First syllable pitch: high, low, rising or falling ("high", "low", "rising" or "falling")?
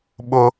high